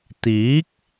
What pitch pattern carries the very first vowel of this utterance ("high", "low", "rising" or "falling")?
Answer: rising